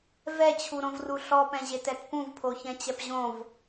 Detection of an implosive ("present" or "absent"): absent